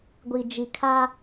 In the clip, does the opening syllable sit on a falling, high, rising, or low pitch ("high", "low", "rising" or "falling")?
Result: low